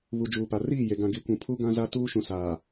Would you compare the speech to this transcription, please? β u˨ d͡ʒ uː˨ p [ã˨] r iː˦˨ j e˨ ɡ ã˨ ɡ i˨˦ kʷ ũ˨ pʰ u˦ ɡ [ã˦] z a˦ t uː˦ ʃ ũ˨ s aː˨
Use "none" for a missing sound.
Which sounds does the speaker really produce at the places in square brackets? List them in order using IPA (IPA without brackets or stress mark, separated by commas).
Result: a˨, ã˦